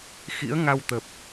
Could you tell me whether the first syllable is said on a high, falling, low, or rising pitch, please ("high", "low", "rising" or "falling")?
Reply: rising